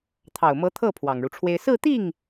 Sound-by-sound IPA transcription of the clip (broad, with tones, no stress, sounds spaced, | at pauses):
t̪ʰ ɑ˨˩ ʊ̯ m ɤ˧˥ t̪ʰ ɤ˥˩ pʰ w ɑ˨˩ ŋ ɻ u˦ ʈ͡ʂʰ w e˥ ɪ̯ s ɹ̩˥˧ t̪ i˥˩ ŋ